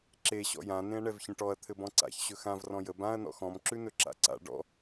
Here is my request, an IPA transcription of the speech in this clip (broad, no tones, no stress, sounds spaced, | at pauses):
ǁ e ɕ ɔ̰ j ã n ẽ ɐ̯ ɳ ɛ v ç ə̃ ʈ ɔ ɐ̯ t̪ʰ ɘ b ɔ̃ ǀ a̰ ç ɕ ɵ x ã v r ɔ̃ j ə b ã ɐ̯ n ɔ̰ x ɔ̃ m ǁ ʉ n ɵ ǁ a̰ ǀ a̰ ɖ ɔ̰